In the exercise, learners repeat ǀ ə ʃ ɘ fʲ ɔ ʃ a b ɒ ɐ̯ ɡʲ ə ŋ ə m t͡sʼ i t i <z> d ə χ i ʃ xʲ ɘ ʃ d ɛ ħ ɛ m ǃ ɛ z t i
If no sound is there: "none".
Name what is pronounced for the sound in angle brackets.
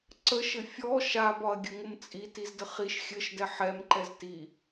z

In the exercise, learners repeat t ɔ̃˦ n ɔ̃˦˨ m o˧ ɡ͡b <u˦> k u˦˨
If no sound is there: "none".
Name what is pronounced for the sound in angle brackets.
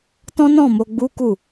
u˦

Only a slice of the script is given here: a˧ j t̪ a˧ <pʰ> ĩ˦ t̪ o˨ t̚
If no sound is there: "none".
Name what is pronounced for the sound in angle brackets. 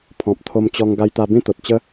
b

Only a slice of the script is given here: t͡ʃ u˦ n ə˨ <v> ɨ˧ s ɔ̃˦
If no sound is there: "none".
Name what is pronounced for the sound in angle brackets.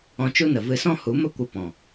v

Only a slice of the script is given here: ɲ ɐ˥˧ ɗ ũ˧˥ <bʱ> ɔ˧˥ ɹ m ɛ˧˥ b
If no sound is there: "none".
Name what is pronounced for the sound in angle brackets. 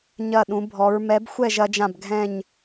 bʱ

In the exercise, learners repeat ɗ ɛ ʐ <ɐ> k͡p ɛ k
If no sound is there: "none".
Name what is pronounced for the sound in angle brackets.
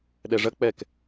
ɐ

